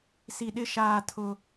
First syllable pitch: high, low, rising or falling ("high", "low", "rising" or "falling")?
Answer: low